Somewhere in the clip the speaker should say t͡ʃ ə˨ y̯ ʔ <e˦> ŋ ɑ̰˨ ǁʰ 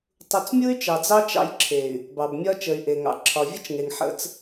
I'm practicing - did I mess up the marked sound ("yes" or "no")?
yes